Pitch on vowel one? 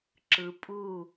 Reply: low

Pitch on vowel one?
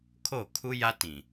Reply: falling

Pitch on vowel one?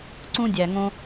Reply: high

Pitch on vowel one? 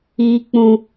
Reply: high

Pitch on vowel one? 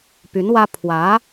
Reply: rising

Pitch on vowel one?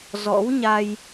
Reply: rising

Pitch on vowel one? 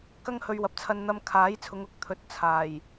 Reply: high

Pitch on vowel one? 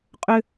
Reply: high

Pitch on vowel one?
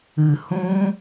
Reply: low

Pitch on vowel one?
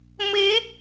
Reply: rising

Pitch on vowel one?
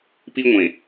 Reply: high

